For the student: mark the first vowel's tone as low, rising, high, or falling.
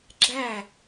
falling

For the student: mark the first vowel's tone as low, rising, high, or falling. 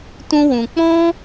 high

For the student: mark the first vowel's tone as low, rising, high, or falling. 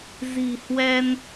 low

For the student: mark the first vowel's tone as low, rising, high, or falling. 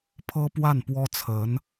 high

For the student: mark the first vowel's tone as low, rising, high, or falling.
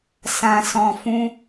low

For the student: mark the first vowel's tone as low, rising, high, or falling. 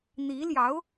rising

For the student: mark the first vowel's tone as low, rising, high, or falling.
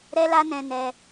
high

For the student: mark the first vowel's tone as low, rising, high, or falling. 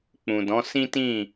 low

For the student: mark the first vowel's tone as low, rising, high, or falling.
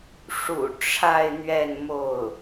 low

